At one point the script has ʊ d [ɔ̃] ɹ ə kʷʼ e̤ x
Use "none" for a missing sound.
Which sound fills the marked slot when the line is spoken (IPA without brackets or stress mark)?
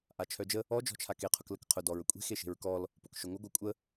ɔ